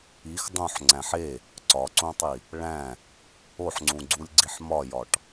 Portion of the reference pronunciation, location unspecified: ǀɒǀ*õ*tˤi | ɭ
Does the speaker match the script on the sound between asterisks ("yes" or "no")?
no